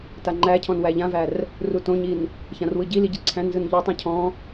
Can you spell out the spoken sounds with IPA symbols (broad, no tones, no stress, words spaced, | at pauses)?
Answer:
taŋ͡ǃæcʰɔ̃n wæʎãvær | rutõɲin | çãrwɯɟili ɟiǀʰæ̃nzɯn ʎɔtˤũ cʰɔ̃